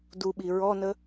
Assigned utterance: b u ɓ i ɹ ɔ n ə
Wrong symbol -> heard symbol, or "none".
b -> d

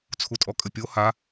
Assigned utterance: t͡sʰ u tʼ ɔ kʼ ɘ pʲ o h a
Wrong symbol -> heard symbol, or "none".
none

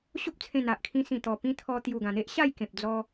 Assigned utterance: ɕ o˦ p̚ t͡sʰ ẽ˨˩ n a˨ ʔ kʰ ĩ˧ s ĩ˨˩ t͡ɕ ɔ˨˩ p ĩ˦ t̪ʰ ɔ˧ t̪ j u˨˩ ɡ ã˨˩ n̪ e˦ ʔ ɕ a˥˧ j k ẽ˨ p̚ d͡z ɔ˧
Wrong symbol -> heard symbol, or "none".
t͡ɕ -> t̪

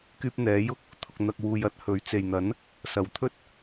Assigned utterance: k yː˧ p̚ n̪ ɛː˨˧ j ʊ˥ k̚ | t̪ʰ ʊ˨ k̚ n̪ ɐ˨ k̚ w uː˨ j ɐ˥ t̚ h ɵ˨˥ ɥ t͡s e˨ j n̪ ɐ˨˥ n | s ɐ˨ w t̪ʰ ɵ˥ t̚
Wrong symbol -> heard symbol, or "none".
none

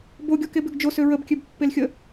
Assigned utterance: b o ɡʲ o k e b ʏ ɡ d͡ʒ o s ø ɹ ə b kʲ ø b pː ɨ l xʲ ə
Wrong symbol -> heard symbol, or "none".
ɨ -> e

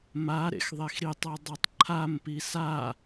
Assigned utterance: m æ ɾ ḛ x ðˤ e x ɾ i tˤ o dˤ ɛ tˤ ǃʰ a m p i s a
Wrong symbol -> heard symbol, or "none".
æ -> a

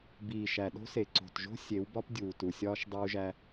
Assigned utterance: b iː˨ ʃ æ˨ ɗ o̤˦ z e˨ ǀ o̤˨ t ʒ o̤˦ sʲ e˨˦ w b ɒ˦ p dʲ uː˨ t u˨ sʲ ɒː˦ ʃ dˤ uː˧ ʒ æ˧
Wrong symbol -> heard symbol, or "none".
z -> s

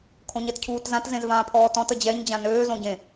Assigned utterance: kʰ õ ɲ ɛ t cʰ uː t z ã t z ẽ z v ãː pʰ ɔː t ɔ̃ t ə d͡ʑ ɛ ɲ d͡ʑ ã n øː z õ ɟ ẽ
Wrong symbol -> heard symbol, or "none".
none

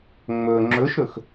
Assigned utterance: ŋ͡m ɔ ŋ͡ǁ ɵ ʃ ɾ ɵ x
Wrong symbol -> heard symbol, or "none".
ɔ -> ɵ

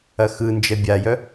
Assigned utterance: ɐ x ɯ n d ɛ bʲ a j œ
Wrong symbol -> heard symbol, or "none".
d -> d͡ʒ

